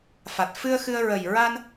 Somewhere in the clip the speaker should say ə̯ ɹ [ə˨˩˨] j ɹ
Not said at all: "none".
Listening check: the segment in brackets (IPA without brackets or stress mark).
ə˨˩